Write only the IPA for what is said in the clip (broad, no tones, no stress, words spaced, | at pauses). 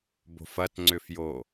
bo̤fɐtŋ͡ǀʏfjo